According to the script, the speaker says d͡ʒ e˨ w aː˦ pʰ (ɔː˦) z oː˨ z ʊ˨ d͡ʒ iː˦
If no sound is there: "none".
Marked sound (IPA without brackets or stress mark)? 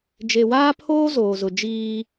oː˦